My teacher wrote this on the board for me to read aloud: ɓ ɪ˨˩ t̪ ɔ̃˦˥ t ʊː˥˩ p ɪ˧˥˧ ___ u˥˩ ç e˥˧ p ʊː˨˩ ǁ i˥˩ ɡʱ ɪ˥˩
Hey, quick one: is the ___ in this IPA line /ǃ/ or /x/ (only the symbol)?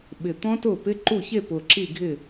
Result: ǃ